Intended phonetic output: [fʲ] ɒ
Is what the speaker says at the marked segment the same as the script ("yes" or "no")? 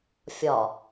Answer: yes